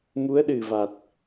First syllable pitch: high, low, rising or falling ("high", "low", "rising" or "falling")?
rising